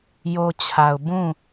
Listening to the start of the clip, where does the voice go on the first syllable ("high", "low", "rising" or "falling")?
low